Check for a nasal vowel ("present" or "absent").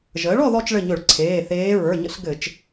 absent